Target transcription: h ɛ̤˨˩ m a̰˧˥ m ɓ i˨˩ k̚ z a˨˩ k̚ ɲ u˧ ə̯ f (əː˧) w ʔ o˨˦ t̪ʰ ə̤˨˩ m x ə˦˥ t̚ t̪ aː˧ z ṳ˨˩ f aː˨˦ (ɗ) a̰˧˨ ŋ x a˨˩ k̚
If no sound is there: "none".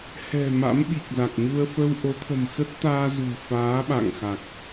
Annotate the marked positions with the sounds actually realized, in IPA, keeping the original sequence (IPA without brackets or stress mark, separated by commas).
ə˧, ɓ